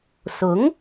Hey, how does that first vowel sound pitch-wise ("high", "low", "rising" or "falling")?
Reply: rising